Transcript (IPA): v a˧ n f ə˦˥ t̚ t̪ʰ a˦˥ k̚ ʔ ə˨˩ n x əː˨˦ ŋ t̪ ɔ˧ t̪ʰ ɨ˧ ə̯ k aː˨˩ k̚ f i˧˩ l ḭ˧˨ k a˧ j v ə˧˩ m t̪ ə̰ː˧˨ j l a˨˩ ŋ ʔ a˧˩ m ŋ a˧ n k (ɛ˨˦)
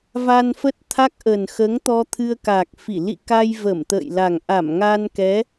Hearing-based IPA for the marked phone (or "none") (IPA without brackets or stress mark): ɛ˨˦